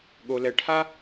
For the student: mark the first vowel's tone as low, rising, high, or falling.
low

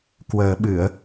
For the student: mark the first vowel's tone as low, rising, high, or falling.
low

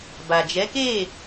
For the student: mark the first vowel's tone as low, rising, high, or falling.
low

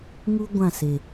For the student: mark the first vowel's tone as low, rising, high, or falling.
high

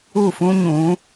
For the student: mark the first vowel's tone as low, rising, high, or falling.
falling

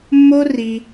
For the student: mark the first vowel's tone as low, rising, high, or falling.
high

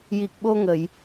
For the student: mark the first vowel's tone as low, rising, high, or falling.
low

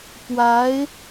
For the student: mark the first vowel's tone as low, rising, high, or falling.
rising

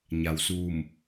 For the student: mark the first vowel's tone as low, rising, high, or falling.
low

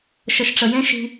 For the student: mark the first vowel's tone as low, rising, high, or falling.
low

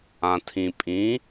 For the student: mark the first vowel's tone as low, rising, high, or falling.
low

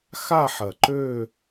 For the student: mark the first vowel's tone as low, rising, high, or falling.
falling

